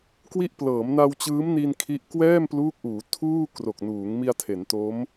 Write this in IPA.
k w i˥˩ ʔ p l ɤː˩˦ m n a˧ w t͡ɕ ɯː˦˥ m n i˧ n kʰ i˥˩ ʔ k w ɛː˥˩ m p l uː˦˥ k̚ ʔ uː˩˦ tʰ uː˥˩ k r o˨˩ k̚ n uː˩˦ ŋ m i˧ a̯ tʰ e˩˦ n t o˦˥ m

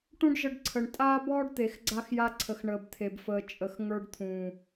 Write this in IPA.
ʈ ũ˦ ɖ ʒ ə˧ ɖ ǀʰ ə˨ ɳ tʼ aː˦ b ɔː˦ ɖ t̪ e˨ x ɡ͡ǀ a˧ x j a˧ ǀʰ ə˨ x ɳ əː˨ b t̪ʰ e˨ b f əː˨ t͡ʃʼ ə˨ x ŋ ə˞˧ ɖ t̪ʰ ũː˨

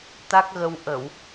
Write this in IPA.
t̪ a˦˥ k̚ ɣ ə˧ w ʔ ə˧˩˨ w

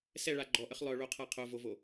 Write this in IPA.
s ɛ ɭ a ɡ͡ǃ ɔ ʔ ə χ lˠ œ ɭ o qʰ a qʰ o v o v o

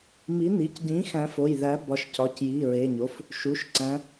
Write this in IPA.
m i˨˥ n i˩˧˩ c ɟ ĩ˨˥ x æ̃˨˥ f o˩˧˩ j ð æ˨˥ b ɒ˨˥ ʃ c ɒ˩˧˩ c j i˩˧˩ ɹ e˩˧˩ ɲ o˩˧˩ f | ʃ u˩˧˩ ʃ ǀ æ̃˨˥

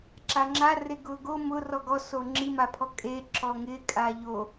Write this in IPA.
ǁ a ŋ͡ǁ a r e ɡ ʊː ɡ o m ʊ r ɔ ɡ ɔ s o ŋ͡ǁ i m a pʰ ɔ kʼ eː ǁ ɔ ŋ ɪː kʼ aː ʎ o

